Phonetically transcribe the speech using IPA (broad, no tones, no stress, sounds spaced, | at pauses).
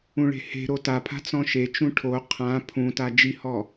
ũ ɭ e̤ h e̤ ɾ o t a pʰ a̤ t͡s ɔ̃ ʃ e t͡ʃ ũ ʈʰ o qʰ ã pʰ ũ t a d͡ʒ i h ɔ